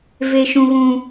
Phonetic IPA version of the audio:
v e˦ ʃ ũ˦ ɣ ũ˦

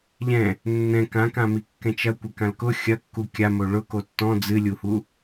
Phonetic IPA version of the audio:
ʎ ɛ̃ | nː ɛ̃ k ã k ã m i kː ɛ̃ t͡ʃ ɐ kʷ ɘ k ã l k ʊ xʲ ɐ kː u kʲ a m o ɭ ʊ k o tː ɔ̃ d͡z ɨ lʲ u h u

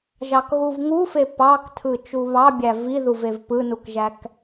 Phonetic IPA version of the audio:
ʒ ɑ k ɣ u v ŋ u f e p ɑ k tʰ ɯ t͡ʃ u β ɑ bʲ æ v i ð u v e v p ɯ n u k ʒ æ k

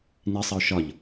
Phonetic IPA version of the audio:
n i sˤ i ʊ̯ ʃ ɒ ʎ

